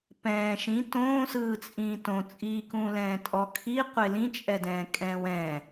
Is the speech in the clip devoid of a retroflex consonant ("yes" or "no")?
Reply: yes